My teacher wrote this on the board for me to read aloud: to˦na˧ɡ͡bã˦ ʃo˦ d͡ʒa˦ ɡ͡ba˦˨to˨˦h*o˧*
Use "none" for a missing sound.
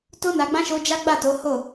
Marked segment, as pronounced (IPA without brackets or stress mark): o˦˨